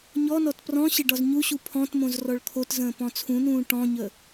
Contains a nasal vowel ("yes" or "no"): yes